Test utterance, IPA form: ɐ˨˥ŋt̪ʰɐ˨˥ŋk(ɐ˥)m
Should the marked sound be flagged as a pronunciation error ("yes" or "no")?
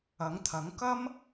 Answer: no